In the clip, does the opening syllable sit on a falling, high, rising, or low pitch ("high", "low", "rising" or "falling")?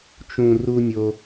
low